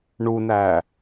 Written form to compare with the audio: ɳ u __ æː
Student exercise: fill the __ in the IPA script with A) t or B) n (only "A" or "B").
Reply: B